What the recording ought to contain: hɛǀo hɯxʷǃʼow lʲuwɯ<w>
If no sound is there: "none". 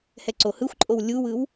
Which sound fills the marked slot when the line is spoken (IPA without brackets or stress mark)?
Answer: w